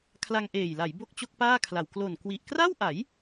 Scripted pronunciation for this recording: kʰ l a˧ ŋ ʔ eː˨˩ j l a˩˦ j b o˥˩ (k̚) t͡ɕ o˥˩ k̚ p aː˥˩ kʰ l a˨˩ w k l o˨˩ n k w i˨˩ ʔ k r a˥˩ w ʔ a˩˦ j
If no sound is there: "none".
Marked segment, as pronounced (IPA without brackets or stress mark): k̚